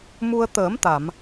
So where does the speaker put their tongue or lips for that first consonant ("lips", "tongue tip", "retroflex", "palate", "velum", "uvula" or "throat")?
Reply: lips